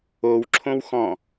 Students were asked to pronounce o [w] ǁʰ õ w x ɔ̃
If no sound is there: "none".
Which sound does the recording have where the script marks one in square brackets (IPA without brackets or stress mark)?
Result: w